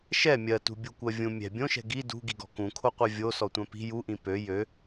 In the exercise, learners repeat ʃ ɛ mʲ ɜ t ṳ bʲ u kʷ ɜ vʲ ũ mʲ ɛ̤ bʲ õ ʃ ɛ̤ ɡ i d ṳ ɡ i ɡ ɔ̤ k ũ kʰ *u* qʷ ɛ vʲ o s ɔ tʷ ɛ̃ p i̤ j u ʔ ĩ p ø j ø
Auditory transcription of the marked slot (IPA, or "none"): o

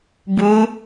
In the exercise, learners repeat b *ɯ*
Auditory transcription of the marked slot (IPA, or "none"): u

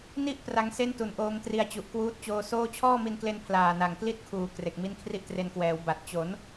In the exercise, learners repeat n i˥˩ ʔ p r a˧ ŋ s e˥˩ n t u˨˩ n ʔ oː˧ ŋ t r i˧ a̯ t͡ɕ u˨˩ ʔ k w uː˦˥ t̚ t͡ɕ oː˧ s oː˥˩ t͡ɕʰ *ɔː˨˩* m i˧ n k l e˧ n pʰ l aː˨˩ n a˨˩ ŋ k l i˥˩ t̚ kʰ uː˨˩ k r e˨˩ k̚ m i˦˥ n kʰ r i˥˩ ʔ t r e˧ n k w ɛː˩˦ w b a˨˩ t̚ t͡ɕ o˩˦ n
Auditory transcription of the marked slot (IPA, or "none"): ɔː˥˩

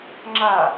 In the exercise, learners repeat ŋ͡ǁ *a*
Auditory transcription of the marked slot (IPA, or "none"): a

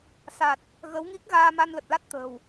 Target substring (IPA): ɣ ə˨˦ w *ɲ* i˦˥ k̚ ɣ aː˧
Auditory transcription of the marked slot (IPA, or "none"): ŋ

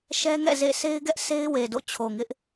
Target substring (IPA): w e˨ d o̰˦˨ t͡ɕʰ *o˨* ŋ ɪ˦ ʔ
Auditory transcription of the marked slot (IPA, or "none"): o˨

